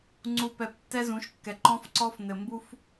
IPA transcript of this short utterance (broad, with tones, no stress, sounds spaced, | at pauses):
ŋ͡ǀ u˨ p ɛ˨ p tː ɛ˦ z ũ˨˦ ʃ kː ɛ˨ ǃ ɔ̃˦ f ǀ ɔ˦ f n ɘ˨ m b u˦ f